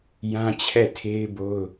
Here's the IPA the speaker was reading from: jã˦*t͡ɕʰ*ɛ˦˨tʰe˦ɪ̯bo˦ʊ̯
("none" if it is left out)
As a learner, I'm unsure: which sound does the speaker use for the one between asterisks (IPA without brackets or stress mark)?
t͡ɕʰ